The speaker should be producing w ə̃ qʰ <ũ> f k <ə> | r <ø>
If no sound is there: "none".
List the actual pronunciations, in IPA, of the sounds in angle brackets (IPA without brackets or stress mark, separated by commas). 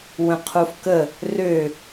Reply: u, ə, ø